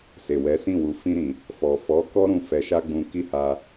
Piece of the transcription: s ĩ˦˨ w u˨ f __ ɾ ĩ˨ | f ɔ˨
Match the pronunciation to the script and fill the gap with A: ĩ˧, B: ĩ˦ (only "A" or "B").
A